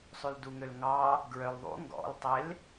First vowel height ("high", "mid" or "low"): high